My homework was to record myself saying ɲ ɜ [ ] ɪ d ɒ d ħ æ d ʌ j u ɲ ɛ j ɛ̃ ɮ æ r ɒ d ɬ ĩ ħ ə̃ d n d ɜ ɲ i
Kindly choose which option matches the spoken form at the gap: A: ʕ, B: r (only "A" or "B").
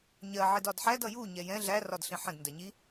A